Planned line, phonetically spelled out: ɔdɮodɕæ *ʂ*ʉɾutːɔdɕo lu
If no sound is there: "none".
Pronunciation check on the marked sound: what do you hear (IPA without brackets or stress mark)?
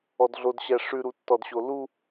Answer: ʂ